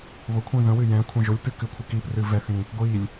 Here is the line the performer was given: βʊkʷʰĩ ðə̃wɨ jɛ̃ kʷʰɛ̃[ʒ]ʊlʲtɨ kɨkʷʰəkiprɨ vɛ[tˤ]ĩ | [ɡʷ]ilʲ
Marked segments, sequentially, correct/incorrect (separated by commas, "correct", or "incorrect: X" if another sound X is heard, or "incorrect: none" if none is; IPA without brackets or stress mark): correct, incorrect: θ, correct